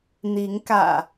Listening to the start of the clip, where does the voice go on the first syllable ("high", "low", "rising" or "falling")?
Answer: rising